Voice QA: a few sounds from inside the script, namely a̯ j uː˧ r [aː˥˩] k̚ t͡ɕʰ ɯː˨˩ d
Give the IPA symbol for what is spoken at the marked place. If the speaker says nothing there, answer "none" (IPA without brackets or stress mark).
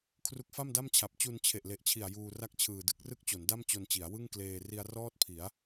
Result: a˥˩